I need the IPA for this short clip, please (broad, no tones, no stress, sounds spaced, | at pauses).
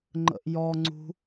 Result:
ŋ͡ǃ ə̰ ʔ j ɔ ŋ͡ǀ ṳ